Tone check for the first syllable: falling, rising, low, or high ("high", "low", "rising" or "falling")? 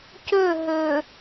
falling